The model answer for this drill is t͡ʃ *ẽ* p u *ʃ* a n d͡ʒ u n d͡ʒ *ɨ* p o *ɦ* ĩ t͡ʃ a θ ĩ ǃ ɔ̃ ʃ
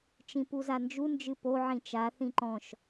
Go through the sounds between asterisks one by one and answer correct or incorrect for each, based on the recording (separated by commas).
incorrect, incorrect, correct, incorrect